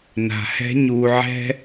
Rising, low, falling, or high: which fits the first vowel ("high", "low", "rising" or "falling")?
low